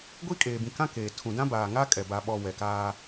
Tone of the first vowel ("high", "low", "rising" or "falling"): high